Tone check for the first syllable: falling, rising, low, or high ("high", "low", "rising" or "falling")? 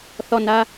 falling